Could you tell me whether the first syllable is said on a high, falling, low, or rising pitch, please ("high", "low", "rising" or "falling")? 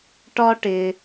high